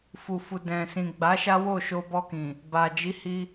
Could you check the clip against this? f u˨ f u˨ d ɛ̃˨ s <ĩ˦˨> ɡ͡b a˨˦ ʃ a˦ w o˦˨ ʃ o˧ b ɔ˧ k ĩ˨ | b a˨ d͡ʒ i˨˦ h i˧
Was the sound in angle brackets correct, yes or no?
no